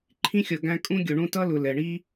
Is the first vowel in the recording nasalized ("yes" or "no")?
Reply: yes